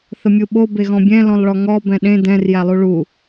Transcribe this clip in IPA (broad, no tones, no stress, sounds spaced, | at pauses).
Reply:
θ ə mʲ u ɓ o b e ɣ ɔ̃ bʲ ɛ̃ l ɔ̃ lˠ ɭ ɔ ŋ ɔ b ɛ̃ ɗ ẽ d ɛ̃ r j æ lˠ u ɭ u